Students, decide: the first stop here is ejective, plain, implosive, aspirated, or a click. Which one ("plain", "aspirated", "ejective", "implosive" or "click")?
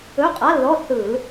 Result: ejective